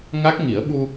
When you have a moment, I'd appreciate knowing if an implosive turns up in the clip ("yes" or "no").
yes